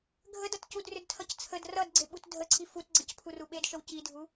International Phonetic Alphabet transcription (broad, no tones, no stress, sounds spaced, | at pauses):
ɡʱ ə d ʌ t c u d r ʏ d tʰ ʌ c t͡sʰ ə d r ʌ d ɡ͡ǀ e ɓ u t dʱ ə ǀʰ i f u t ɡ͡ǀ ʌ c pʰ u r u ɓ e d ʃ ə w c i dʱ u